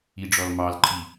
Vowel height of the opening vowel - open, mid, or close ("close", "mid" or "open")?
close